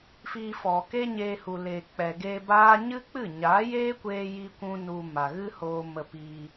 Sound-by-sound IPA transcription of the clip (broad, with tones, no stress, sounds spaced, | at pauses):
f iː˧ f ɔ˨ k e˦ ɲ eː˧ h u˨ l eː˨ k͡p ɛ˨ ɡ eː˧ b aː˦ ɲ ɨ˦ k͡p ɨ˦˨ ɲ aː˨˦ j eː˦ kʷ eː˧ j i˦ kʷ ũ˦ n u˧ m a˨ ɣ ɨ˦ h oː˧ m ə˧ p i˧